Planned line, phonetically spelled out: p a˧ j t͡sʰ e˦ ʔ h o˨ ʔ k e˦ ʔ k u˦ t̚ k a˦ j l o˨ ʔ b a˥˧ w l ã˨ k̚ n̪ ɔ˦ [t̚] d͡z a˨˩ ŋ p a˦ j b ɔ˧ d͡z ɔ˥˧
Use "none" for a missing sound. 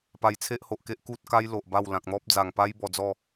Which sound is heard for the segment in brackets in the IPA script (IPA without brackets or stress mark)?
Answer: p̚